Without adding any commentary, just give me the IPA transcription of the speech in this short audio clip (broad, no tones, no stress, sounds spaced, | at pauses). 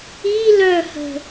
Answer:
i l œ h ə̤